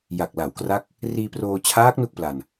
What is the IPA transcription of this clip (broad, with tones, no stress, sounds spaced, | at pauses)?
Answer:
j a˨˩ k̚ l a˩˦ w k r a˦˥ k̚ | r iː˧ p r oː˧ t͡ɕʰ aː˦˥ k̚ n u˥˩ k̚ p l a˧ n